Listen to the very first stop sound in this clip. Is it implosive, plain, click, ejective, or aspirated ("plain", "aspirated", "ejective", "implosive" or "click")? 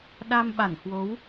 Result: implosive